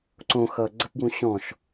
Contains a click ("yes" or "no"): yes